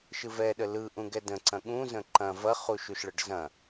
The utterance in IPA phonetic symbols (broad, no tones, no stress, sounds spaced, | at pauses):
ʃ ɯ v ɛ ɗ ə l ɯ ʔ ũ ɡ ɛ d ə̃ ǀ ɐ̃ ɠ ũ z ə̃ ǃ ɐ̃ v ɐ χ u ʃ u ʃ ɭ ə ɖ z ɐ̃